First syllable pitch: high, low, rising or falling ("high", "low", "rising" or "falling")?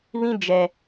high